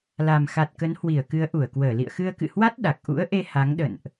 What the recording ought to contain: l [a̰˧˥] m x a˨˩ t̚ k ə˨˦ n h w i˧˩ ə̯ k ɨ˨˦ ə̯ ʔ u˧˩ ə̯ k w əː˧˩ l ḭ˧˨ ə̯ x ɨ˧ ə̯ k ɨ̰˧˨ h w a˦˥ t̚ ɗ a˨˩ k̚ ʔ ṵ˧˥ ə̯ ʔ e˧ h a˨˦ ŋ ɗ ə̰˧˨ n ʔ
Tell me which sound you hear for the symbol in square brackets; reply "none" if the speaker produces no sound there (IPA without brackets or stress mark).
a˨˩